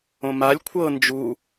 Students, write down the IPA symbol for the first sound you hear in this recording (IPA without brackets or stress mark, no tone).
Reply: õ